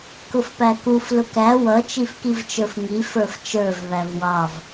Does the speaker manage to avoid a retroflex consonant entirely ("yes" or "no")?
yes